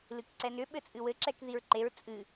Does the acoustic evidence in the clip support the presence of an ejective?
yes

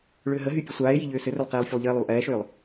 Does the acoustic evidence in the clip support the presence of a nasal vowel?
no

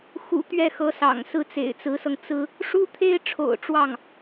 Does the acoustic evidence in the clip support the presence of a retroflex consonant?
yes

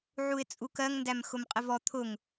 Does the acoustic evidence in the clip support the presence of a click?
no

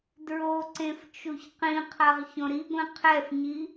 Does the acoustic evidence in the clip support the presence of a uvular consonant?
yes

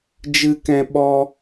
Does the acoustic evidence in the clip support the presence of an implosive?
yes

